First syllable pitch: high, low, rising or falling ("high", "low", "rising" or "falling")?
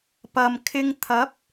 low